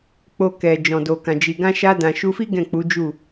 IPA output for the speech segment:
k͡p o˧ k ɛ˨ d͡ʒ ɔ̃˨ d o˨ k ã˨ d͡ʒ i˨ ɡ ã˧ ʃ a˧ d ã˨ ʃ u˧ f i˦ ɡ ɛ̃˦˨ k͡p u˨˦ d͡ʒ u˦˨

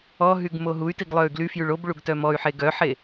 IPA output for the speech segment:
ɔ ɦ y ɡ m o ɦ u y̯ t i ɡ lˠ œ y̯ ɡ l y f j y ɭ o b ɭ u ɡ t œ m ɔ y̯ ħ e ɡ œ ħ e

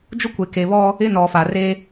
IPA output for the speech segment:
d͡ʒ ʊ˦ kʷ e˨ k e˨ β ɔ˦ | ɪ˦ n ɔ˨ f a˨ r e˦

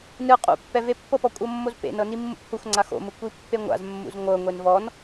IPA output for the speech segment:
n ɯ qʼ ṵ pː ɛ v e pː ɤ p ɔ kʷʼ ɤ mː o z p ḛ n ɤ n i mː ṵ p h u x ŋ͡ǀ a x o̰ m ɯ kʷ i pː e ŋʷ a̰ z mː ṵ z ŋʷ ɤ ŋʷ e n v ɔ n

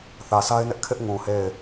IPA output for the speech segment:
θ ä˨ s a˦ ɪ̯ n ɪ˦ ʔ kʰ ɪ˦ ʔ ŋ ũ˨ h e˦˨ ɪ̯

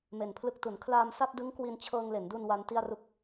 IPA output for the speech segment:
m e˨˩ n pʰ l ɯ˦˥ k̚ t u˩˦ n kʰ l aː˧ m s a˥˩ t̚ d ɯ˦˥ ŋ k w i˧ n t͡ɕʰ ɤː˧ ŋ l e˩˦ n d u˧ n w a˦˥ n t i˥˩ a̯ r u˥˩ k̚

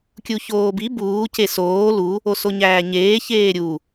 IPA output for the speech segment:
kʲ u ç oː b i b uː c e s oː l u | o s o ɲ æː ɲ eː ç eː ɾʲ u

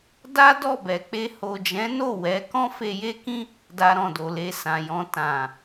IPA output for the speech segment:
d a˦ d ɔ˦˨ b ɛ˨ k͡p e˧ h o˨ d͡ʒ ɛ̃˨˦ n o˦˨ w ɛ˨˦ k ɔ̃˦ f e˧ j e˦ k ĩ˦ | d a˧ ɾ ɔ̃˨ d o˨ l e˧ s ã˨ j ɔ̃˧ t ã˨

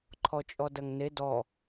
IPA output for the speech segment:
ǃʰ ɔ t͡ʃʼ ɔ d ɐ ŋ n e d ɔ

